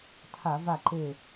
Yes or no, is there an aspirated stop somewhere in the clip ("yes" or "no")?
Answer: yes